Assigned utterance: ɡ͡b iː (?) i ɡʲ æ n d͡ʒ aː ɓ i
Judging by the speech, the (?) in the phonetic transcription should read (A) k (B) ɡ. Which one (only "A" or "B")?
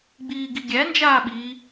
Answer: B